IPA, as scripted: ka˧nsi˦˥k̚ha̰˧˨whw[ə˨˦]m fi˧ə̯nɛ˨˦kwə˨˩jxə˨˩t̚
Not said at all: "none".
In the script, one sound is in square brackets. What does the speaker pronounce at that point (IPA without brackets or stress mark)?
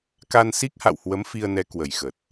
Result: ə˨˦